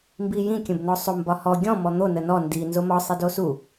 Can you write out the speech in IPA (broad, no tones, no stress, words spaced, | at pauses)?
mbijĩ kʲə̃bnɔsˤom bɒhɔ ɡʲɔ̃ mɔn̪o nənɔ ndi nzomɒ sˤidosu